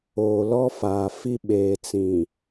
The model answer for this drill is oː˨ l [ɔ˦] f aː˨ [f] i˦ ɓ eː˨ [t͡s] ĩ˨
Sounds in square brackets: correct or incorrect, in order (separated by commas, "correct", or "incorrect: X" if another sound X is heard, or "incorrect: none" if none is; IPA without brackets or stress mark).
correct, correct, correct